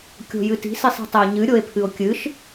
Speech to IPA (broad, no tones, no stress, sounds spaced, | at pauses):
kʲ o̤ j ɨ t i̤ s i sˤ i̤ tˤ ɛ o̯ ɲ ɨ ɾʲ o e̯ pʰ ɨ o̯ kʲ ɨ ʃ